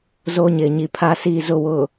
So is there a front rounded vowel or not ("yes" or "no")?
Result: no